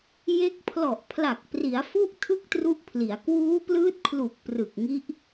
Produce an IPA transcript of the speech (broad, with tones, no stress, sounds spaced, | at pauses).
j e˦˥ k̚ pʰ l ɔ˨˩ ʔ pʰ l a˨˩ k̚ p r i˩˦ a̯ f u˦˥ ʔ tʰ ɯ˥˩ k̚ t r u˦˥ ʔ pʰ l i˩˦ a̯ k w uː˦˥ p l ɯː˦˥ t̚ kʰ l u˨˩ k̚ p r ɯ˨˩ k̚ ŋ i˦˥ ʔ